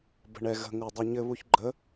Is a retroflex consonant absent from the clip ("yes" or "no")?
no